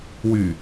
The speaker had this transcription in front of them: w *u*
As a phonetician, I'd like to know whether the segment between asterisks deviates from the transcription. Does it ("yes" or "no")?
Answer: yes